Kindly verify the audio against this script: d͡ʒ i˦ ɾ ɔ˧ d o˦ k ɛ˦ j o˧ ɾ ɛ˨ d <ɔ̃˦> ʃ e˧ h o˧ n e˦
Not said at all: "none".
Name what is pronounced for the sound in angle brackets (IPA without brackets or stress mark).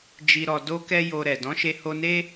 ɔ̃˨˦